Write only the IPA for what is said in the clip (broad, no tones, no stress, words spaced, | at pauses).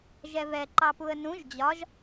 ʒɛvɛ ǃɑpuə̯nũʒ d͡ʑɒʒ